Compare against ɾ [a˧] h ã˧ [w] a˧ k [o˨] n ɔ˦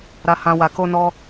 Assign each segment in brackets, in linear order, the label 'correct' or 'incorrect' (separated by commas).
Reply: correct, correct, incorrect